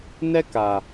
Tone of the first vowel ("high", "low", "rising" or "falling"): high